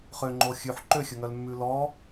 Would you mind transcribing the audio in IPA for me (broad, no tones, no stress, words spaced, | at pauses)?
χøŋ͡ǃo xʲʉħ ǃøxʲɵŋœlmːʉ lɔ